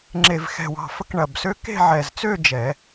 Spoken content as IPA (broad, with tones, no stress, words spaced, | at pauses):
ŋ͡ǁe˨˩vxɛ̤˨˩wɑ̤˨˩fə˧˥k ɳɐ˨˩bsø˧˥ke̤˥˧ʕɛ˨˩z t͡sø˥˧ d͡ʒɛ˨˩˦